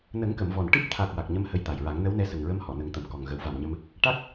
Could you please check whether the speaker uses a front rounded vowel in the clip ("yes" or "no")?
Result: no